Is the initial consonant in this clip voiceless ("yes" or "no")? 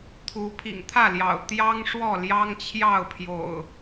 yes